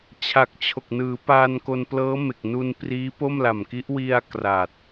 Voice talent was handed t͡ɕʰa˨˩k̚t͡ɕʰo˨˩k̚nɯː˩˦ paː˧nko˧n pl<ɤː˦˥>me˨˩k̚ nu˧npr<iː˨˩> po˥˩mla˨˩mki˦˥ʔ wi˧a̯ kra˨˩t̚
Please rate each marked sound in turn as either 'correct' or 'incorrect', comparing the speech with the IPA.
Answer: correct, incorrect: iː˦˥

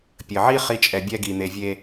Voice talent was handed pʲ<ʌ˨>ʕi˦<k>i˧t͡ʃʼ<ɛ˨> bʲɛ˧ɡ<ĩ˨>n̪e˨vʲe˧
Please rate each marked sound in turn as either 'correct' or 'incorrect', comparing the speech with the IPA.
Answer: incorrect: ə˨, incorrect: χ, correct, incorrect: i˨

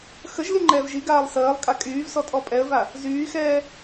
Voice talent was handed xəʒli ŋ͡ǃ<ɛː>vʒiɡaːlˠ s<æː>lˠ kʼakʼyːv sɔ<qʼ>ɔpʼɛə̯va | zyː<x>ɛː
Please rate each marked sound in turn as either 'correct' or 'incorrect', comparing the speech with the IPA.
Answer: correct, incorrect: əː, incorrect: tʼ, correct

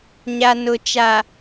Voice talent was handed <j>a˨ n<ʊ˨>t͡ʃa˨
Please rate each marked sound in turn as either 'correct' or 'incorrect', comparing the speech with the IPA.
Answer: incorrect: ɲ, correct

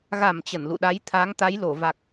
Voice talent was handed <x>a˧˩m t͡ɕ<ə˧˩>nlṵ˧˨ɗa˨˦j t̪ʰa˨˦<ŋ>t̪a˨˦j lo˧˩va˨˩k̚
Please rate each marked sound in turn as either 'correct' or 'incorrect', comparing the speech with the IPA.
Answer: incorrect: ɣ, correct, correct

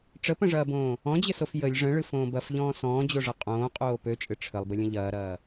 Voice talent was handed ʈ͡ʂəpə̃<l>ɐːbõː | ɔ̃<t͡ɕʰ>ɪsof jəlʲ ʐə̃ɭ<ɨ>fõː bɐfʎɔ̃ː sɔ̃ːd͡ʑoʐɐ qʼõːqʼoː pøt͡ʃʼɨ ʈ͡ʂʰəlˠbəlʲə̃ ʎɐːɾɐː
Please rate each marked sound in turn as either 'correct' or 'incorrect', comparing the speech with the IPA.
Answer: incorrect: ʐ, incorrect: d͡ʑ, correct

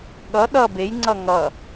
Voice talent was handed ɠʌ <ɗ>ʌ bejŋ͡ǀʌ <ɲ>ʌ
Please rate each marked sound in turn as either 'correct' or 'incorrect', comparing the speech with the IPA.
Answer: correct, incorrect: ŋ

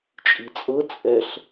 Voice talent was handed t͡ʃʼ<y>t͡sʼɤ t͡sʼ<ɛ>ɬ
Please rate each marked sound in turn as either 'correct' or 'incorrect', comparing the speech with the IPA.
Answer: incorrect: i, correct

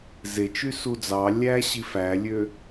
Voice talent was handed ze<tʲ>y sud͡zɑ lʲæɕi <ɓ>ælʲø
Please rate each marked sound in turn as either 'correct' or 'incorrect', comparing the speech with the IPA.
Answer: incorrect: t͡ʃ, incorrect: f

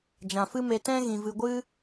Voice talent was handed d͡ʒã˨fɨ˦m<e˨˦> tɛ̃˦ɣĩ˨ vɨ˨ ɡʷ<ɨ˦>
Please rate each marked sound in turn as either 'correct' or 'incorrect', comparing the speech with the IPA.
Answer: incorrect: e˧, correct

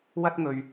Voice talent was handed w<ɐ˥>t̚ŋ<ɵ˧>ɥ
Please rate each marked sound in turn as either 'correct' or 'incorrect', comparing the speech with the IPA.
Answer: correct, correct

